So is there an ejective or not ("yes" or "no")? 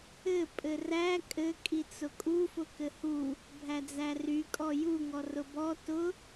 yes